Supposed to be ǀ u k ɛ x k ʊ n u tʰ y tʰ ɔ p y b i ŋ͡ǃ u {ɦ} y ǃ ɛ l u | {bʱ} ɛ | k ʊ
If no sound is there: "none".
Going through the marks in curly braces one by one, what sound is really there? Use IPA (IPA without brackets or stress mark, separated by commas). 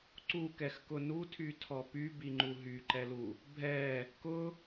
ɦ, bʱ